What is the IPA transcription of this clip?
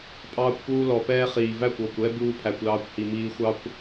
pʼ ɑː˧ kʷ p uː˧ l ɔ˨ p ɛː˦ χ iː˨ v æ˦˨ kʷ ɔ˨ kʷ ɛ˦ b uː˦ pʰ æ˧ kʷ l ɑː˦ kʷ h i˧ m iː˧ xʷ ɑ˦ kʷ

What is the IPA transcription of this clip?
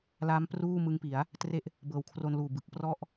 l a˦˥ m p r uː˥˩ m ɯ˦˥ ŋ p i˩˦ a̯ | t r e˦˥ ʔ | b ɤː˨˩ w kʰ r o˧ n l uː˨˩ b ɯ˨˩ k̚ p r ɔ˥˩ ʔ

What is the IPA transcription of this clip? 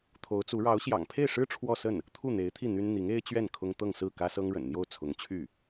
t̪ʰ o˧˥ ʊ̯ t͡s u˧˥ ɻ ɑ˧˥ ʊ̯ ɕ j ɑ̰˨˩ ŋ pʰ e˥˩ ɪ̯ ʂ ɻ̩˥ ʈ͡ʂʰ w ɔ˥˧ s ə˥˩ n | t̪ʰ u˥˩ n̪ e˧˥ ɪ̯ t̪ʰ i˥˩ n̪ y˥ n n̪ i˧˥ ŋ e˥ ɪ̯ t͡ɕ ɥ ɛ˥˩ n kʰ ʊ˥ ŋ t̪ ɤ˥˧ ŋ s ɹ̩˥˩ k ä˥ s ɤ˥ ŋ ɻ ə̰˨˩ n n̪ j o˥˩ ʊ̯ t͡sʰ ʊ˧˥ ŋ t͡ɕʰ y˥˩

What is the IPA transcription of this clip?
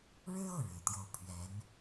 ɻ ɻ̩˥ ɤ˥˩ ɻ ɻ̩˨˩ t̪ j o˥˩ ʊ̯ pʰ ɥ ɛ˧˥ n

